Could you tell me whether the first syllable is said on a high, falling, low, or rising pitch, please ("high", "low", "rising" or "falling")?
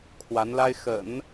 rising